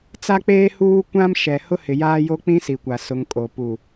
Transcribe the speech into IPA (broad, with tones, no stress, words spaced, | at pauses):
t͡sa˦k͡peː˦huː˦ kʷã˦m ʃɛ˨ hʊ˦hɪ˨jaː˦jo˦ k͡pĩ˦si˨kʷa˨ sʊ˨ŋ kʼo˨ pu˨